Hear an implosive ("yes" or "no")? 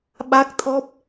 yes